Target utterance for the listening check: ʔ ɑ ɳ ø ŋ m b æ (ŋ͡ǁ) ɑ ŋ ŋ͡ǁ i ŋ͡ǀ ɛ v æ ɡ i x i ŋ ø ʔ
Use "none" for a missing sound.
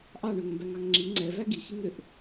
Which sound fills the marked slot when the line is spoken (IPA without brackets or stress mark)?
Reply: ŋ